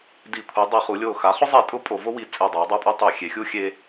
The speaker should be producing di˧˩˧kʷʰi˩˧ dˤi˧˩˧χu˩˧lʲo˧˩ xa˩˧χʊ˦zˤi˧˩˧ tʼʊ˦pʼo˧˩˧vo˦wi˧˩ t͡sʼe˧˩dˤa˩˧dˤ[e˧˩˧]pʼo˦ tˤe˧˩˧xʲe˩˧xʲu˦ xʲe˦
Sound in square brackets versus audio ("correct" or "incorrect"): incorrect